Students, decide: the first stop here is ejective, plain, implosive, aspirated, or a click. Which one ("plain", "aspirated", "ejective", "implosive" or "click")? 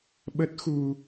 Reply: implosive